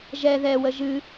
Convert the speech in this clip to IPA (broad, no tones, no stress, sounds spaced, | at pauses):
ʒ ɛ ð ɛ w ə ʒ ɨ